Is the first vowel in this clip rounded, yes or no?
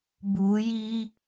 yes